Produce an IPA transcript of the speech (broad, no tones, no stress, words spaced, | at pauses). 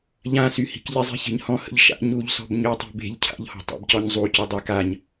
ʎãsyhi̤k ʎezˤi̤çe̤ɲhɔ̃ hə̰ʎʃa̰ ɲuʎsɔ̤b ɲøtˤi̤ be̤ʎ cʰa̰ʎhɔ̤ tˤa̰bcɔɲzˤu cydˤakaɲ